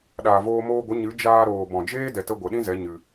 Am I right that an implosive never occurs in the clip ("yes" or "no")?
no